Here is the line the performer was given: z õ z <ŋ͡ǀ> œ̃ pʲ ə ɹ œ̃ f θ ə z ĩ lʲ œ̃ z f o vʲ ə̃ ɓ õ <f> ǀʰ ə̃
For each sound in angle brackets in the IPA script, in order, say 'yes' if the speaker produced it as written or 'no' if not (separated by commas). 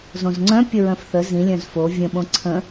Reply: yes, no